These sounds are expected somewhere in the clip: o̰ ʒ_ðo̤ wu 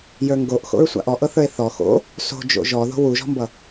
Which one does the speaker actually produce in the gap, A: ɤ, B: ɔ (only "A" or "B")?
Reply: B